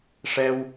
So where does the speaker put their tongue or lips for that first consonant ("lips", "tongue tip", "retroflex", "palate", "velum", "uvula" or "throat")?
retroflex